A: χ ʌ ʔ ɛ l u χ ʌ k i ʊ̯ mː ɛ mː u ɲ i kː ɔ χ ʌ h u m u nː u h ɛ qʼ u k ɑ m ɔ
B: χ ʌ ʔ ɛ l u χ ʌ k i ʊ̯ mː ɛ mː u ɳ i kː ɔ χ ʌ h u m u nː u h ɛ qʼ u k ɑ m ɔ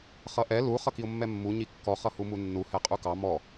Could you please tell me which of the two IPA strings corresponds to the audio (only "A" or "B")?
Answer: A